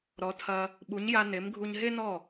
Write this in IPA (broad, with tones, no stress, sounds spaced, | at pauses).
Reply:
ɾ ɔ˩˥ tʰ ɐ˧ | ɓ u˩˥ ɲ j a˧ n e˩˥ m ɡʱ u˧ ɲ ɦ e˥ n ɔ˥˩